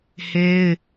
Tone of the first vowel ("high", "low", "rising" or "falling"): high